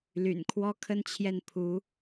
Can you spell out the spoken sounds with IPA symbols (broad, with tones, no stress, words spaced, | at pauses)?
ly̰˨˩nkʰwɔ˥kʰə˥n t͡ɕʰjɛ˥˩npʰu˧˥